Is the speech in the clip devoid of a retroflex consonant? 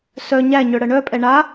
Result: no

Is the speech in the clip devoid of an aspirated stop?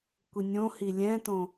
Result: yes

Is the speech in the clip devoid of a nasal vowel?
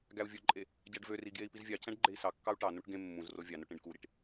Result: no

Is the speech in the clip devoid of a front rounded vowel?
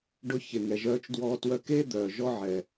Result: no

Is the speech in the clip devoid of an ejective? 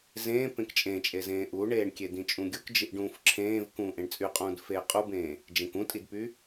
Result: no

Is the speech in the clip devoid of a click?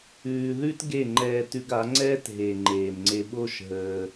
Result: no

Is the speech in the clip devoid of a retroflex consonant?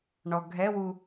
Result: no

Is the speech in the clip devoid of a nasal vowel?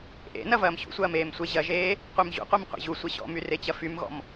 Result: yes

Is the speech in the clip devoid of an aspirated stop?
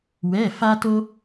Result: yes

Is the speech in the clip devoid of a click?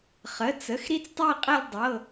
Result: yes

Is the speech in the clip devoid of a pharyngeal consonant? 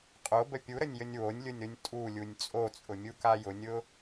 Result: yes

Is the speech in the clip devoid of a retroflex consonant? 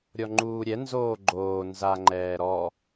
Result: yes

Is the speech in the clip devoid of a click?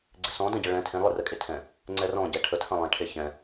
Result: no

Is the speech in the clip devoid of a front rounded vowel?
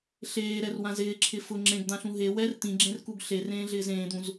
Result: yes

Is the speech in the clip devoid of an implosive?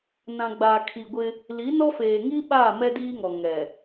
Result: no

